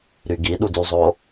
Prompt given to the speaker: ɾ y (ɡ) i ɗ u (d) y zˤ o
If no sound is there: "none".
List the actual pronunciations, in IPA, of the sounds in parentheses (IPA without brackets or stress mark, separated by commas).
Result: ɡ, d